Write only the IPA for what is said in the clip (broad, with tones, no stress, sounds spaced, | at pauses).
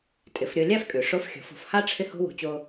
tʼ ɪ˩˧ f ɾʲ o˧ lʲ a˥ f kʼ ʉ˩ ʂ o˧˥ f xʲ ɔ̤˩˧ f o̤˩ f h a˥ ʈ͡ʂʰ ɪ˥ h o̤˥ w o̤˧ t͡ɕ o˧